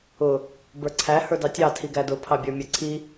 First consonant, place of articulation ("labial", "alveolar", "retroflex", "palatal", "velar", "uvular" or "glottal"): labial